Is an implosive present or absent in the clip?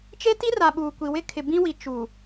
present